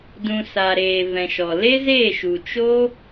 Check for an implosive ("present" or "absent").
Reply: absent